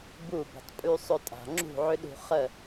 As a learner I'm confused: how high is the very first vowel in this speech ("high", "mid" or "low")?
high